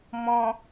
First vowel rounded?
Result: yes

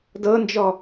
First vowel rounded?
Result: no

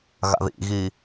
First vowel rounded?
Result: no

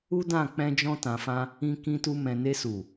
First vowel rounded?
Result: yes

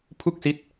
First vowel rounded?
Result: yes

